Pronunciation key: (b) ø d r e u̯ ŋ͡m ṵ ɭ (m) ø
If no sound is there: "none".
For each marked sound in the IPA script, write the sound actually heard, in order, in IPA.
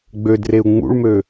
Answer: ɡ͡b, m

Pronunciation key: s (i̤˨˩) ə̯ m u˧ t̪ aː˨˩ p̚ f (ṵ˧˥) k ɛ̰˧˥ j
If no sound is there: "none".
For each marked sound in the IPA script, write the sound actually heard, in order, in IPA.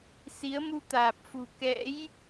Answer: i˨˦, ṳ˨˩

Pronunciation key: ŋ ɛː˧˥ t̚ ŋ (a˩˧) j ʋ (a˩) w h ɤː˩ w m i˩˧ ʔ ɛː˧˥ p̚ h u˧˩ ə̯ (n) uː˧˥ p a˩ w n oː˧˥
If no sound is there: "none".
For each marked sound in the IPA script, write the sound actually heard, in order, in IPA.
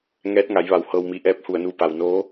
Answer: a˩˧, a˩, n

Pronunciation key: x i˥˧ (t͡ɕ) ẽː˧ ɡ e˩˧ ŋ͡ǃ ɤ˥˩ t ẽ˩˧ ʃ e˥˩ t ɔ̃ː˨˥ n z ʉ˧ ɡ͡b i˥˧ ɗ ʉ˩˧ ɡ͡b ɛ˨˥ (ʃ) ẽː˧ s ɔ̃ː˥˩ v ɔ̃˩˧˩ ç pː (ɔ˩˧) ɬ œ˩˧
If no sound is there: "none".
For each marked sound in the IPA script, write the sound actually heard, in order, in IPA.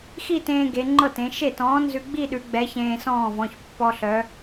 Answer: t, ç, ɔ˧

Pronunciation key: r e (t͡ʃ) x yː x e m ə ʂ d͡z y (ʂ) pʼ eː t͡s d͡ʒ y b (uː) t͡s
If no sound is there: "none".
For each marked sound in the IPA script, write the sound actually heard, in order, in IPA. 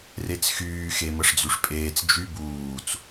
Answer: t͡s, ʂ, uː

